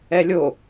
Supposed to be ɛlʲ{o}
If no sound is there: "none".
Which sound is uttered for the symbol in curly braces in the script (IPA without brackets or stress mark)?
o